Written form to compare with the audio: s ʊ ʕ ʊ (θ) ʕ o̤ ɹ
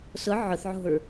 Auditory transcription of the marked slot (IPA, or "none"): θ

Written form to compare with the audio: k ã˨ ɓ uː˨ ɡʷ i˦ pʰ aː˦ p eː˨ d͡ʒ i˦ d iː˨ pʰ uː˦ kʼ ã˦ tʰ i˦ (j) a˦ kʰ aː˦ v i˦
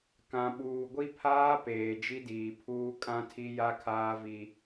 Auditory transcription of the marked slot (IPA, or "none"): j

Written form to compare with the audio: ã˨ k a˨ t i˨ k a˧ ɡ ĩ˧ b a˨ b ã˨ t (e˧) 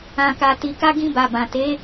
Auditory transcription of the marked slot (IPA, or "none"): e˨˦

